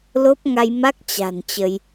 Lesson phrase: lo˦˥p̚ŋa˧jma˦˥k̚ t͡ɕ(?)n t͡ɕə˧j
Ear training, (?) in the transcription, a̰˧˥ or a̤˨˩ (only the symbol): a̤˨˩